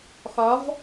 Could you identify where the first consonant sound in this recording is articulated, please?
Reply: velar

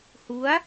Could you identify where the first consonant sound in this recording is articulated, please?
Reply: glottal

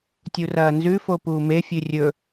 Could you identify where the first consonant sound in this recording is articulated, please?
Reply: alveolar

